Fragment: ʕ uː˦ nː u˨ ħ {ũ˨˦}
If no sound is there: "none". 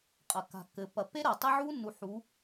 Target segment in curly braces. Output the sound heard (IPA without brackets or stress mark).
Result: u˨˦